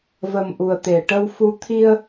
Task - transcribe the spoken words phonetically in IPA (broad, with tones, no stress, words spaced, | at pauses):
və˨˩m ʔu˨˩ə̯t̪e˨˩˨ʈə˧w fu˧˥ t̪ʰi˧ə̯